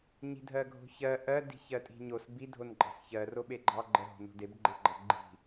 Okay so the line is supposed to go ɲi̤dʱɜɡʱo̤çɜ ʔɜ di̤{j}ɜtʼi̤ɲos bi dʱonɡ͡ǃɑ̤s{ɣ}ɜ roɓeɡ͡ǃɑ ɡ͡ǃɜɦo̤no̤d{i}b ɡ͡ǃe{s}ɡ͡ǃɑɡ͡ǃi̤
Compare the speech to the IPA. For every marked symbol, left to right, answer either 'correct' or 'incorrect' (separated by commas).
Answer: incorrect, incorrect, incorrect, incorrect